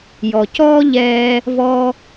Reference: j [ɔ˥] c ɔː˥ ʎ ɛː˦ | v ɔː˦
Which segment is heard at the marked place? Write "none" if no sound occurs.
ɔ˨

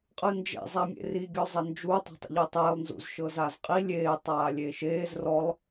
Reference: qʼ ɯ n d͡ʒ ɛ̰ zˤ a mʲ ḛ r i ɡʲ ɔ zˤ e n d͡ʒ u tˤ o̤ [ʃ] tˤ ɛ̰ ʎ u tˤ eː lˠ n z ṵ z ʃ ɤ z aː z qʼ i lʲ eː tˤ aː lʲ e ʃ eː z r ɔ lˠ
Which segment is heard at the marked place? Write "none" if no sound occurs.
none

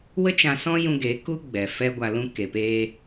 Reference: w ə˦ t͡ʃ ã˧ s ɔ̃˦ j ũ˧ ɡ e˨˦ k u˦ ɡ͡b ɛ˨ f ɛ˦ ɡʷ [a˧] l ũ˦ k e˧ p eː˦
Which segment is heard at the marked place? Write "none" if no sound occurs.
a˧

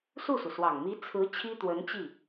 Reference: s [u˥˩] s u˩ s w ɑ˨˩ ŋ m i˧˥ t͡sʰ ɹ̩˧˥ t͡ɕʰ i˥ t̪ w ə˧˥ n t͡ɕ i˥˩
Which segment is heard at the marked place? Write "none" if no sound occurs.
u˥˩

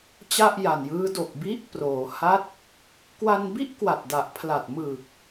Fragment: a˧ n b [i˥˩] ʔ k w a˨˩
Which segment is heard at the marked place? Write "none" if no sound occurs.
i˥˩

